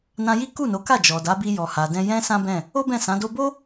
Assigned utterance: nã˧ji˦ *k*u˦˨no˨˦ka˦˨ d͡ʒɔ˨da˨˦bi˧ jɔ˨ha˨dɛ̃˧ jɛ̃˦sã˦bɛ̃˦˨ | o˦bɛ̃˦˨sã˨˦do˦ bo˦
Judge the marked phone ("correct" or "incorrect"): correct